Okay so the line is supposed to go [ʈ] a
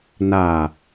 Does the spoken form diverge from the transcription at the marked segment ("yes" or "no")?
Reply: yes